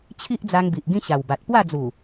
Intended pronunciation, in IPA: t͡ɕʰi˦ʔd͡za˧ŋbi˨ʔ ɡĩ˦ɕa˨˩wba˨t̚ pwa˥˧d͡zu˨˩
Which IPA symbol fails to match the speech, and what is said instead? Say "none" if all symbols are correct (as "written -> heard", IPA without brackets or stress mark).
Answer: none